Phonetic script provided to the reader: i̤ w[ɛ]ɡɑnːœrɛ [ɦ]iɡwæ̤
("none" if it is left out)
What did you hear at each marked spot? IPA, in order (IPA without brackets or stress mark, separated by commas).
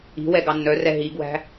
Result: ɛ, ɦ